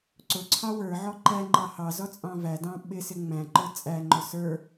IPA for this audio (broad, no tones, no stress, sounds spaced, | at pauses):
ǀ ʊ ǀʰ ɑ w ə˞ ʕ ɔ ǃ æ ŋ͡ǃ ɑ h ɑ z ɔ t͡sʼ ɑ̃ v æ d ɑ̃ ɓ ɪ s ɪ ŋ͡m æ̃ ǃ ə˞ t͡sʼ æ ŋ͡ǃ ʊ s ə˞